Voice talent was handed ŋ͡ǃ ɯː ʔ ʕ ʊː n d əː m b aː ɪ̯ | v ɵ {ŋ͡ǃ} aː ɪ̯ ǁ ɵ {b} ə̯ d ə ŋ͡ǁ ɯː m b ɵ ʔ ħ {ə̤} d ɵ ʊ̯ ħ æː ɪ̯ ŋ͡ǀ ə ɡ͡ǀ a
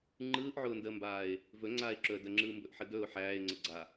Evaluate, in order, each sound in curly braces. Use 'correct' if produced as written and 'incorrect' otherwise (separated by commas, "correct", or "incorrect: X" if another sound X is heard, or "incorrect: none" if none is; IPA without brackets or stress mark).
incorrect: ŋ͡ǀ, incorrect: none, incorrect: ə